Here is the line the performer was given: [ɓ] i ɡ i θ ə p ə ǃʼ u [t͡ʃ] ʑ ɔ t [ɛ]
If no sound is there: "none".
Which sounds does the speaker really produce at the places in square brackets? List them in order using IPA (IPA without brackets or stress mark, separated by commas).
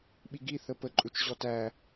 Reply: ɓ, t͡ʃ, æ